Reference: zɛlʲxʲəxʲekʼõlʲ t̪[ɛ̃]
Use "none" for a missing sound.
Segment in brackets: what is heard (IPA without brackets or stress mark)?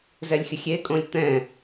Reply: ɛ̃